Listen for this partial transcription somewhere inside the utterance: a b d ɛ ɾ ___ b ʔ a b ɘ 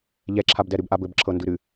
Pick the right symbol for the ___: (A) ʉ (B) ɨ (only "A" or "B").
B